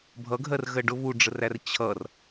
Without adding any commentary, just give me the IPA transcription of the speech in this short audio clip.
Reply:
bʱ ʌ ɡʱ ɜ r ɣ ɜ ɖ ʊ β u ɖ͡ʐ ə r æ r t͡ɕʰ ʌ r

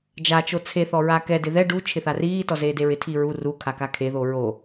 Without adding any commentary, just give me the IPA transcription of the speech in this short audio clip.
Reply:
d͡ʒ a t͡ʃ o t͡sʰ e θ ɔ ɹ a k ɛ d ɪ ð ɛ ɖ u t͡ʃʰ ɪ θ a r iː t ɔ z eː d e ɹ ɪ tʰ i ɹ u r u kʰ a k a kʰ e ð o ɹ o

